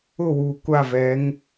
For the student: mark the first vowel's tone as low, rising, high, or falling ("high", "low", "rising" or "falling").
falling